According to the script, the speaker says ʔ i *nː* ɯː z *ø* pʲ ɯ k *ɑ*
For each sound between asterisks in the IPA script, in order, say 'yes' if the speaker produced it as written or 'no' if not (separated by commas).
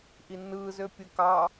yes, yes, yes